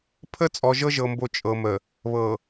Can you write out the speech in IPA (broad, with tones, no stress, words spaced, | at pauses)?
pʰə˦ t͡sʼɔ˨ʒɤ˦ʒɤ˨mbo˨ t͡ʃʼɤ˨mə˨ | βɤ˨